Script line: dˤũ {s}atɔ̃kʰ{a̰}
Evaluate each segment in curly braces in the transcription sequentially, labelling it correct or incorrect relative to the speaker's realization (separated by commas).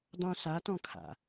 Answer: correct, correct